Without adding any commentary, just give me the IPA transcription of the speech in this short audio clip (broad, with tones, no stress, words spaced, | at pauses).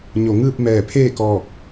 ɲo˩ŋɯː˥˨p̚ mɛː˧˩pʰeː˥˨kɔː˧˩k̚